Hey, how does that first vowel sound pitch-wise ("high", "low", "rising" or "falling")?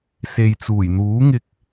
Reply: low